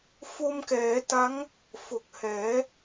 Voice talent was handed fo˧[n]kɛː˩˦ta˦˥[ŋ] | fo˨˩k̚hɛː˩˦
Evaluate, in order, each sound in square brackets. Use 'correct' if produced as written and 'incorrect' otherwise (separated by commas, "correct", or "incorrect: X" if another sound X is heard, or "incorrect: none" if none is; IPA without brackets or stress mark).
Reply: incorrect: m, correct